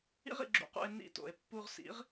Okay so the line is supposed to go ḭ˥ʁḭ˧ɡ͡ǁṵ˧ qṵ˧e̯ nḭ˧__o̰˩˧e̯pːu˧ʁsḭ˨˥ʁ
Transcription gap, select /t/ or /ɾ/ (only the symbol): t